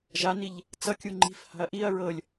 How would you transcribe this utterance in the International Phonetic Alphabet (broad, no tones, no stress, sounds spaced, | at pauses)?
ʒ a n i ʎ | t͡s ʌ kʲ u ŋ͡ǃ i̤ f h a̤ ɐ̯ ʔ i ɐ̯ ɹ ɤ lʲ